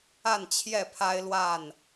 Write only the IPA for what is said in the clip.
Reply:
a˥˨nt͡ɕʰjɛ˥˨pʰa˦ɪ̯ lwa˥˨n

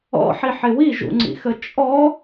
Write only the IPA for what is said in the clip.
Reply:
ɔ̰ħiħɪ wiʒṵŋ͡ǀḭxə t͡ʃʼɔ

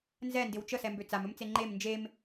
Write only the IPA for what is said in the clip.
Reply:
nzɛndɪw t͡ʃəsɛmbø t͡samɵmt͡se ŋ͡ǃem nd͡ʒem

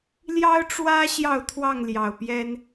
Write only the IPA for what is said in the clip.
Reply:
ljɑ˦ʊ̯ʈ͡ʂwä˦ ɕjɑ˥˨ʊ̯t̪ʰwɑ˥˨ŋljɑ˨˩ʊ̯pjɛ˦n

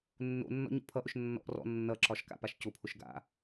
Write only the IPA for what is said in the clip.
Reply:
nːo̰nːɔ̰ ɲo̰pʰʌʔʊʃ nːɔ̰ʔ rɔ̰ nːʌǁɒʃ ka̰paʃcʊpʰʊʃ ɡa̰

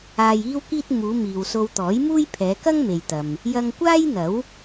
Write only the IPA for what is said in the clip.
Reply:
aː˧jiː˥wkiː˥t̚ muː˨˧ miː˨wso˧wt̪ɔː˨˥j muː˥jpʰɛː˨˧ kɐ˥ŋme˨jt̪ɐ˨m | jɐ˧ŋkʷaː˥jn̪ɐ˨˥w

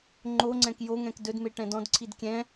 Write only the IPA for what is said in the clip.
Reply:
ŋ͡ǃoŋ͡ǀɛ̃k joŋɛ̃k dɵdme ʈɛ̃dɔ̃dǀʰid kʲɛ̃

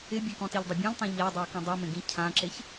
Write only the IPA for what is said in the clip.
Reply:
ɪbʲekɔ̃ tiʎdˤɪbʲẽʎtˤẽ ʎadˤew kĩdˤimẽɡĩ cʰãǁeç

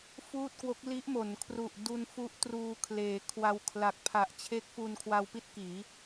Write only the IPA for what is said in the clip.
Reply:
fuː˥˩t̚kwo˦˥k̚ li˦˥ʔmo˩˦nkʰru˨˩ʔ du˧n fu˦˥ʔtruː˧kʰleː˩˦kʰwa˧w kʰla˨˩k̚pʰa˨˩ʔ t͡ɕʰe˦˥k̚fu˧nkʰwa˧wpi˥˩t̚ kiː˩˦

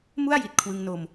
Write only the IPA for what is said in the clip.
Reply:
mu˥˩a̯ ji˨˩t̚kʰwɯ˧ŋno˧m

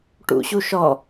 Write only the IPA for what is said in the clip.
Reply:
ʈṵɕuʃɔ

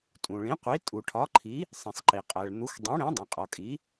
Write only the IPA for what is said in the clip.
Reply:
tʼũ˩ɭĩ˩˥qʷi˩˥ tʼu˩ʈʰɒ˩˥ǃʰi˩˥ | sˤĩ˩sˤǃi˩ qʼæ˩ɭn̪u˩˥x dˤĩ˩˥ɽẽ˩˥dˤẽ˩qʼɒ˩ kʼi˩˥

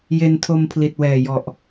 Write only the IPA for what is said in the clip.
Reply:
je˧ntʰo˧mpʰli˨˩t̚wɛː˨˩ jɔ˨˩ʔ

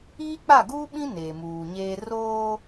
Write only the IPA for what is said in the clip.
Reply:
iː˦k͡pa˦˨ɡuː˦ɓĩ˦ neː˨muː˨ɲeː˦ roː˦

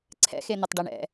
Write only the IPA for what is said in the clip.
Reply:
ǀʰɛ̰xe nʊtˤɖɛɳɛ̰

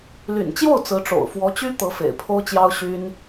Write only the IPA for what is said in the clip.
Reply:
ly̰˨˩nt͡ɕjo˥˩ʊ̯ t͡sɹ̩˧˥ʈ͡ʂo̰˨˩ʊ̯ fwɔ˧˥t͡ɕy˥ t̪ɤ˧˥fḛ˨˩ɪ̯pʰo˥ʊ̯t͡ɕjɑ˥ʊ̯ ɕy˥n

